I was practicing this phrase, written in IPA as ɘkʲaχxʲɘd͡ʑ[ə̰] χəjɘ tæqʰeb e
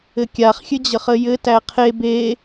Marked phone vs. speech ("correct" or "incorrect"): incorrect